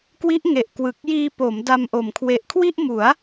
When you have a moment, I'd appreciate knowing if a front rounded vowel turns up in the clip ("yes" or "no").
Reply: no